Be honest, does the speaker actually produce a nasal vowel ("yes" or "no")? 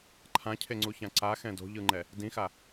yes